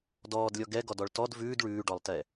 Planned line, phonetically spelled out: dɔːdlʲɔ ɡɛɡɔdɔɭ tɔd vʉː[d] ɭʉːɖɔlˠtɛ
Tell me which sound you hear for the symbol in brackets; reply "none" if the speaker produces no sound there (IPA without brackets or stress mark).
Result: d